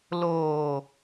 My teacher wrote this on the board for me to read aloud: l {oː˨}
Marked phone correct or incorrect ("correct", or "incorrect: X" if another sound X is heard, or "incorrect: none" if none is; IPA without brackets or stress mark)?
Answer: correct